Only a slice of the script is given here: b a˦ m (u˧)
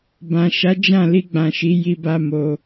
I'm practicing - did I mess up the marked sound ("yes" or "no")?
yes